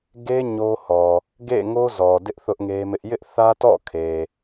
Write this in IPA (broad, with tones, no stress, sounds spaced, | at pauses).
ɡ e˦ ɲ o˦ h ɔ˨ | ɡ ḛ˦˨ ŋ o˦ z ɔ˨ d ɪ˦ ʔ θ ʊ˦ ʔ ŋ e˦ m ɪ˦ ʔ j ɪ˦ ʔ θ ä˦ t ɔ̰˦˨ kʰ e˨